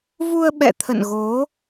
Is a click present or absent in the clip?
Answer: absent